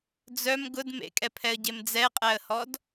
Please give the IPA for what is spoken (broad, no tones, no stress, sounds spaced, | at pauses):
d͡z œ m ɡ ʊ d m ḛ kʼ ɛ pʰ ɛ ə̯ ɟ e m d͡z ɛ qʼ æ ə̯ h ɔ d